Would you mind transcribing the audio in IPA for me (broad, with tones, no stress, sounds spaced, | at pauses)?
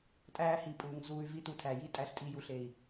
tʼ æː˦ h i˧ pʼ uː˨ ŋ z uː˧ y̯ v i˦ t u˧ tʰ æ˨ j i˦˨ tʼ æ˧ ɬ tʼ i˧ j u˨ ɬ e˨ i̯